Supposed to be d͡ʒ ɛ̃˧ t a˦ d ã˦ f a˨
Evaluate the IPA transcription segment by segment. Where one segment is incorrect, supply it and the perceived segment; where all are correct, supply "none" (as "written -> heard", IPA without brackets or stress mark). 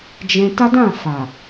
ã˦ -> ã˦˨